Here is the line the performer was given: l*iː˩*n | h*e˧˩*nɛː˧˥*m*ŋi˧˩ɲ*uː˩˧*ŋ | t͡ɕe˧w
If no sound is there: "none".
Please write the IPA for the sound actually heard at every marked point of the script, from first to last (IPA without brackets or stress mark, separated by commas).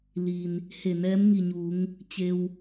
iː˩, e˧˩, m, uː˩˧